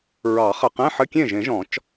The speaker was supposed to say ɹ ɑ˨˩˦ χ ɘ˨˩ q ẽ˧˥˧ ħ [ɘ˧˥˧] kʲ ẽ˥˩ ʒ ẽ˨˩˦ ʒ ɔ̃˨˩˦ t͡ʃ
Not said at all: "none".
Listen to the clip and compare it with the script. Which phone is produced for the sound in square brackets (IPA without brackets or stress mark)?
ɘ˧˥˧